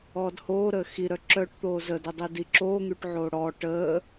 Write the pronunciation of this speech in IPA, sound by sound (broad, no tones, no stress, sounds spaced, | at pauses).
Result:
ɔː d h oː ɾ əː x i ɾ œ ǁ œ ʈ t̪ oː z ə d ɛ dˤ e d i ǁ oː ŋ y ʈ ʕ oː ɽ ɔ ʈ əː